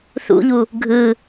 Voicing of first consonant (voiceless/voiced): voiceless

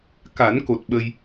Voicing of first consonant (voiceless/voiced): voiceless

